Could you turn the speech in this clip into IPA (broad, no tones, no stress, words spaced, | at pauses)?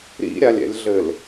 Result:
ɾḭɾʲalʲɛ̰lʲɮɘl